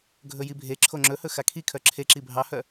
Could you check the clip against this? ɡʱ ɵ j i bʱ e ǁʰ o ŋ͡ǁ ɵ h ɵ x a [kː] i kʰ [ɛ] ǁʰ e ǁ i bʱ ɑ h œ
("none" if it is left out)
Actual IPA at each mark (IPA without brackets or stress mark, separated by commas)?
kʰ, œ